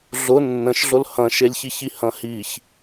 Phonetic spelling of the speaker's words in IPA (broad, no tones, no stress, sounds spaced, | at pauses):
ɮ ʊ nː ə̃ ʃ ɮ ʊ l h ɐ̃ ʃ e lʲ ç i ç i h ɐ̃ h i ç